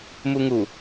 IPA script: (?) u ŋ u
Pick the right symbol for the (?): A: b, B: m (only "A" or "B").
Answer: B